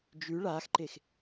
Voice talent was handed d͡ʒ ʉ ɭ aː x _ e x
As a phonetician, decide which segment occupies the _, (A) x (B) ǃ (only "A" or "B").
B